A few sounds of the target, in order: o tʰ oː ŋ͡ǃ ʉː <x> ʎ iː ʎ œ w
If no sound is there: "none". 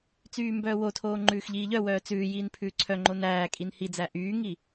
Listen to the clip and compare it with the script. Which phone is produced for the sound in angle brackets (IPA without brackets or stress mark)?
x